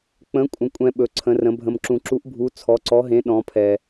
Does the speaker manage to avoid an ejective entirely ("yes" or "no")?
no